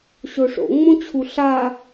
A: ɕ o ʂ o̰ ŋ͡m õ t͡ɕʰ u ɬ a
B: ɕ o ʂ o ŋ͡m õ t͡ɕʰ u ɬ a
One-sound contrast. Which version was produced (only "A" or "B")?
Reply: A